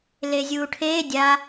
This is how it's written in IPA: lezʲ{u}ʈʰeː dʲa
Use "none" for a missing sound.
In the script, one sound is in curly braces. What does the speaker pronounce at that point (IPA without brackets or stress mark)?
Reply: uː